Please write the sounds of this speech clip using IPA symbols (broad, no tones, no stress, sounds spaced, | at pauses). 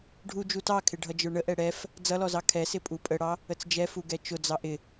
ɖʱ u d͡ʒ u t ɑ kʰ ɪ ɖʱ ʌ d͡ʒ ə˞ ɳ ə ʔ ɛ ɽ ɛ f | d͡z ʌ l ɔ z ɑ kʰ ɛ s ɪ pʼ u pʼ ə ɽ ɑ | ə t͡s d͡ʒ ɛ f u ɡ ɛ t͡ʃ ʊ d͡z ɑ ʔ ɪ